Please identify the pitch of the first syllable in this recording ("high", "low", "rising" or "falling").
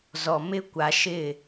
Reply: low